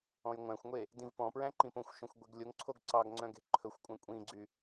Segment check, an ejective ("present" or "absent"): present